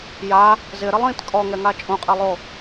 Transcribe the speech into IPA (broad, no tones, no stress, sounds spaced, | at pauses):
j a | z ɪ ɾ ɪ lˠ ĩ t kʼ ɔ ŋ ɛ ŋ a t͡ʃʼ ũ qʼ e lˠ o